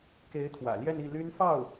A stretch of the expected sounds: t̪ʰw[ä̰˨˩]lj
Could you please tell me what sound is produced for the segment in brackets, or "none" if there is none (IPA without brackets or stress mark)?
ä̰˨˩